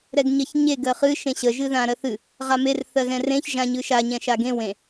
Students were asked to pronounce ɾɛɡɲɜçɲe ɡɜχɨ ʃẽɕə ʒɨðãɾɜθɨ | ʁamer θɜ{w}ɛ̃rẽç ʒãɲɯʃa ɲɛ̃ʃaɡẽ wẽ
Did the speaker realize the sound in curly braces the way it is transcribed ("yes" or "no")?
no